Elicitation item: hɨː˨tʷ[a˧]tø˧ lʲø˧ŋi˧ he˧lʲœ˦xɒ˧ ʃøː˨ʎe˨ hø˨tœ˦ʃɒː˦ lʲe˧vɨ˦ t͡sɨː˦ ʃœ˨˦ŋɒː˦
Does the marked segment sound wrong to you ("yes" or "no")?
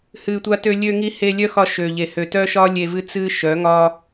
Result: no